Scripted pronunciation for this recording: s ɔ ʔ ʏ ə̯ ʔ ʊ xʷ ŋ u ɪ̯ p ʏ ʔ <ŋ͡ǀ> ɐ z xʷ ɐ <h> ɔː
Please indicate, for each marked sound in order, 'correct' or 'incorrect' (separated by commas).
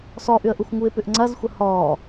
correct, correct